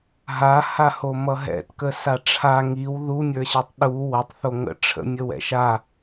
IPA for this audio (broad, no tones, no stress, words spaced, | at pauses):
ɦahaho mʌɦɛ̰tkə saʈ͡ʂʰa ŋiw ðumʲə˞ɕatˤ ɗu wʌtˤθo ŋə̰ʈ͡ʂʰə̰ mʲəwɛ̰ʃa